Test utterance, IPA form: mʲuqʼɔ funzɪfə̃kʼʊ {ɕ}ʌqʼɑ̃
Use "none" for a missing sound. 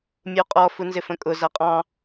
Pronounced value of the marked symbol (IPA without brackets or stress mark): z